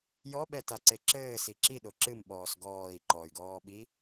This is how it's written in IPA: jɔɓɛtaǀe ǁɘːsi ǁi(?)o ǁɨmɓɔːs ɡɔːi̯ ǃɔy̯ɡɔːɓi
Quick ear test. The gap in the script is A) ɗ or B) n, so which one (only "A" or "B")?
A